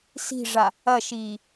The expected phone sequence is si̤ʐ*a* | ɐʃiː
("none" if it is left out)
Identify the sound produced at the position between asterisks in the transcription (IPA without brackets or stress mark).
a